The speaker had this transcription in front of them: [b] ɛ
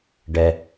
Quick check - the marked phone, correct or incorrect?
incorrect: ɖ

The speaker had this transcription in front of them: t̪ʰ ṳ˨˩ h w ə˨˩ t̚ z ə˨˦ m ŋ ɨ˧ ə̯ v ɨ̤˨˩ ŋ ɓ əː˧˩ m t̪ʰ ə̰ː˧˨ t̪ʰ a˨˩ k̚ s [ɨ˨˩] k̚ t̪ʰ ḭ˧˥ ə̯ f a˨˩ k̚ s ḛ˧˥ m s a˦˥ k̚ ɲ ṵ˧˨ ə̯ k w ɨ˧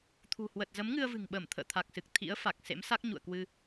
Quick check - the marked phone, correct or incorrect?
correct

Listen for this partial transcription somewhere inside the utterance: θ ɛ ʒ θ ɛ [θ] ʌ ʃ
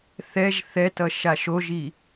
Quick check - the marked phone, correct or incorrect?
incorrect: t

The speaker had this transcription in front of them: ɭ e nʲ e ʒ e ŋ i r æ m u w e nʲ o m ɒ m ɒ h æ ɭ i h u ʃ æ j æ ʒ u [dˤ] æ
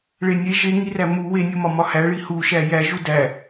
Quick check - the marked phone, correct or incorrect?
incorrect: d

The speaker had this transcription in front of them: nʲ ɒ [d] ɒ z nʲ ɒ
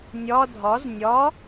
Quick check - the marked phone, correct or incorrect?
incorrect: dʱ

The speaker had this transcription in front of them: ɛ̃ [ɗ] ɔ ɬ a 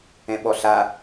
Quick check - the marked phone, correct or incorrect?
incorrect: ɓ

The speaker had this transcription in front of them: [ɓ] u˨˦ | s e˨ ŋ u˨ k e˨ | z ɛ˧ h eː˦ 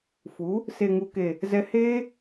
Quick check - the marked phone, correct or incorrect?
incorrect: f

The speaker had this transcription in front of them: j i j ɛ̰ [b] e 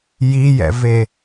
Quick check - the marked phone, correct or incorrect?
incorrect: v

